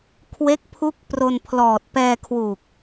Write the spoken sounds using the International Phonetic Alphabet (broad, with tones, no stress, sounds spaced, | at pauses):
kʰ w e˦˥ k̚ pʰ u˦˥ k̚ p r o˧ n pʰ l ɔː˨˩ t̚ p ɛː˧ kʰ w u˨˩ k̚